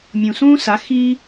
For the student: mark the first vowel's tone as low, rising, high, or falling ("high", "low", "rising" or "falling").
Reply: low